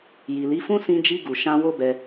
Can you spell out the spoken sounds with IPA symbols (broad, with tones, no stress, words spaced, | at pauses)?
ji˨li˨˦fũ˦ sĩ˧d͡ʒi˧ ɡu˨ ʃã˧ wo˦bɛ˧